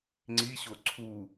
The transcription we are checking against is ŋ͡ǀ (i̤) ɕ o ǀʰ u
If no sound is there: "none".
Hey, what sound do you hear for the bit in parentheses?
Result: i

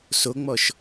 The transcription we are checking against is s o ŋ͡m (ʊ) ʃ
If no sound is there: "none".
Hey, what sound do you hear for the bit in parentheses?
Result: ɔ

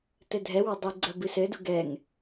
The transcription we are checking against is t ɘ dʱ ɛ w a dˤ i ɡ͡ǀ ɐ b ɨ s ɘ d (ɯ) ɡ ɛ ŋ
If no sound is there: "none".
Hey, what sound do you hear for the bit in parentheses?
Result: u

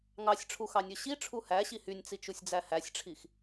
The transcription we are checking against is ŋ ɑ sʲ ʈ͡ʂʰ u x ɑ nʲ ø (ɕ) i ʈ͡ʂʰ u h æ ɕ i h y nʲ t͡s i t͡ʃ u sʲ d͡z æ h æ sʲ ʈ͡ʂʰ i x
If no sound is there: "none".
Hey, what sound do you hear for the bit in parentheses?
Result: ɕ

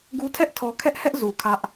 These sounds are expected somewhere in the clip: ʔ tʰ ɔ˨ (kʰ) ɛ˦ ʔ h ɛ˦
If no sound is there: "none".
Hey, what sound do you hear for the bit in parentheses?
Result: kʰ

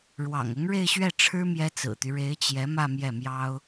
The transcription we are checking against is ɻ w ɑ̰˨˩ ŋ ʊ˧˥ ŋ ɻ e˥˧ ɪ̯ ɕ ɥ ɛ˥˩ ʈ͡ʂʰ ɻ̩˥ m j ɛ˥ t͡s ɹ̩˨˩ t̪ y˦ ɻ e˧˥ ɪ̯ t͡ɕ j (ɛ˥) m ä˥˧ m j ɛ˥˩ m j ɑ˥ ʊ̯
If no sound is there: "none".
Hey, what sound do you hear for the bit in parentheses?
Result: ɛ˧˥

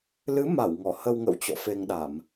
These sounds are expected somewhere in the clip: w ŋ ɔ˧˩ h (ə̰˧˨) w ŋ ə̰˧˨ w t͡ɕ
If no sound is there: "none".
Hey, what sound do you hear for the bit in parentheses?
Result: ə˧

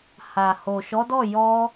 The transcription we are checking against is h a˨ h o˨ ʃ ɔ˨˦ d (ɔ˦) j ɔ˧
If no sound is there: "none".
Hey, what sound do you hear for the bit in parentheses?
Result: ɔ˦˨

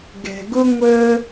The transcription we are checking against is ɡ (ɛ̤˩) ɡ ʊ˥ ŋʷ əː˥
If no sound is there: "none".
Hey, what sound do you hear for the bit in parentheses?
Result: ɛ̤˩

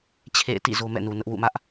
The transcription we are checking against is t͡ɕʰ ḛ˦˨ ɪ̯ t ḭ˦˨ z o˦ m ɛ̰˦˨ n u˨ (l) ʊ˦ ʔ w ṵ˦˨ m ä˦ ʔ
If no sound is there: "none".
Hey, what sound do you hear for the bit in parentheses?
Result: n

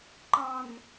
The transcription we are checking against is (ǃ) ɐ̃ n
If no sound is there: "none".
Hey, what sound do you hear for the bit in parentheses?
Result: ǃ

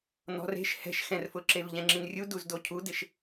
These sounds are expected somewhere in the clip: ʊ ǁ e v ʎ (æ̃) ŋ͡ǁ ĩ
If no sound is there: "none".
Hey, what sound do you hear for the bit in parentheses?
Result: ɛ̃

